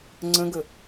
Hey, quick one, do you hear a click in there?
yes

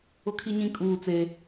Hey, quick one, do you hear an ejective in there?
yes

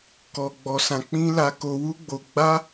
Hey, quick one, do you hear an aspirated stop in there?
no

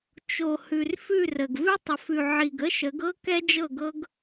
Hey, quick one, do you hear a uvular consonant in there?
no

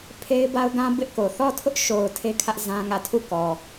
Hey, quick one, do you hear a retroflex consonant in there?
no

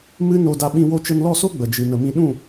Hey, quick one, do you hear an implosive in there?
yes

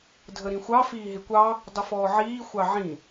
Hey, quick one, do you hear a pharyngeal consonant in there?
yes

